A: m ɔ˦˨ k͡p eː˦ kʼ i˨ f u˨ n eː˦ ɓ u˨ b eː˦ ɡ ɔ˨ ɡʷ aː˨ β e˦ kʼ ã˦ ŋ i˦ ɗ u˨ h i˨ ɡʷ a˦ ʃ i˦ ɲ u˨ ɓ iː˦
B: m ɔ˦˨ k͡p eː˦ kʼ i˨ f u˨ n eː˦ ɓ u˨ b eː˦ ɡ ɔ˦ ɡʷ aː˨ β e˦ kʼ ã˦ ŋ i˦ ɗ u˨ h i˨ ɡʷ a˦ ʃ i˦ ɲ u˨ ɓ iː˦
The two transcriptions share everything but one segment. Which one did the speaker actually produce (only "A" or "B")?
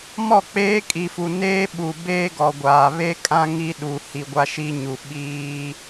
A